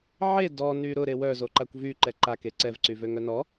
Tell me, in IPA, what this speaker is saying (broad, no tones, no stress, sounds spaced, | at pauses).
ʕ e d ɔ n y ɾ ʊ ɾ e w œ z o ǃ a kʷ v y ǃ ɛ ǃ a k e ǀ ɛ v ǀ y v ø ŋ œ n ɔ